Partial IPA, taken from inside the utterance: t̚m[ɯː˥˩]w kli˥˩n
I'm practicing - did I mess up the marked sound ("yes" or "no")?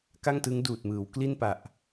yes